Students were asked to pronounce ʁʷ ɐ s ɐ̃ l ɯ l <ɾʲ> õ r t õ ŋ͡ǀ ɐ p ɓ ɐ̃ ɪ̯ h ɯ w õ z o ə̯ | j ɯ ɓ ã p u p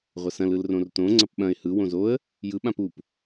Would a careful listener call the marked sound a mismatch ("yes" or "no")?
yes